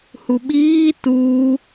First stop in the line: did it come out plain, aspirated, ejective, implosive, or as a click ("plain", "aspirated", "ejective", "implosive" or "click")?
implosive